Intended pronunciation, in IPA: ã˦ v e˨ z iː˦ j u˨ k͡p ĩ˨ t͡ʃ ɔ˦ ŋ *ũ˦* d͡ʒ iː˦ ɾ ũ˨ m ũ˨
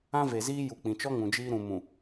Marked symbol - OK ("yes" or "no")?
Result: no